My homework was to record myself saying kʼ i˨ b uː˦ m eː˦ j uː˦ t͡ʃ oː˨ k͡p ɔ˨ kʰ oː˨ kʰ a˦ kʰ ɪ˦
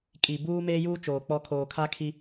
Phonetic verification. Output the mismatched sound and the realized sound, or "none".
ɪ˦ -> i˦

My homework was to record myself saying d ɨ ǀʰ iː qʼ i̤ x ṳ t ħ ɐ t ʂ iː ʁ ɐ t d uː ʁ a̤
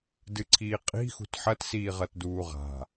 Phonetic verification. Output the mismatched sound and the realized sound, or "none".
ʂ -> s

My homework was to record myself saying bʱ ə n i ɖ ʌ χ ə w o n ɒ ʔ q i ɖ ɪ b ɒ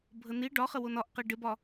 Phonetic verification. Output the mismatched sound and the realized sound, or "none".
ʌ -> ɒ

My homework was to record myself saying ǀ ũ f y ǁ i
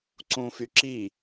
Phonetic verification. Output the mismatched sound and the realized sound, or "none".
none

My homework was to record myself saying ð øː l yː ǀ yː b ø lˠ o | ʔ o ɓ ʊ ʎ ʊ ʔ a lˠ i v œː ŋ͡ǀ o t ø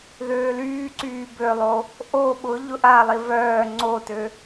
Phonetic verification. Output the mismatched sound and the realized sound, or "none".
none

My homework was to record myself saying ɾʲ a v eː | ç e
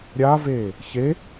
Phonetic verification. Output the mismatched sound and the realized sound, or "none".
none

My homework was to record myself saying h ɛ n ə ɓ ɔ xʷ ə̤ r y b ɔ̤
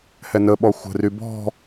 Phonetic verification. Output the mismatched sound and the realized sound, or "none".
none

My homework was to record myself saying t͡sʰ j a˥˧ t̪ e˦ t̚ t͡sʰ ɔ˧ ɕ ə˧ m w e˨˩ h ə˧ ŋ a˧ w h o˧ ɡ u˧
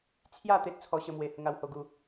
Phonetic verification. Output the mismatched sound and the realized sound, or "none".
none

